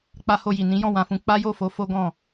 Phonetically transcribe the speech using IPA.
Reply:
k͡p a˧ h o˧ j i˨ n ĩ˨˦ j ɔ̃˦˨ w ã˨ f ũ˧ k͡p a˦ j o˦˨ f o˨˦ f o˦ ɡ ɔ̃˦˨

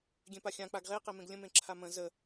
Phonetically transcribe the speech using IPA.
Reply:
ɡʲ ẽ p a xʲ ã k͡p a ɡ ʁ e q e m ẽ ɡ lʲ ə̃ m ẽ ǁʰ a m ə̃ z ə

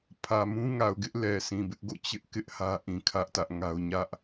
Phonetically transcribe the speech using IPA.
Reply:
pʰ ä˨ m ũ˦ ŋ a˨ ʊ̯ ɡ ɪ˦ ʔ l ɛ˨ s ĩ˨ b ɪ˦ ʔ ɡ o̰˦˨ t͡ɕ ɪ˦ ʔ k ɪ˦ ʔ h ä˦ ʔ ĩ˨ kʰ ä˦ ʔ t ä˦ ʔ ŋ a˦ ʊ̯ ɲ ä˦ ʔ

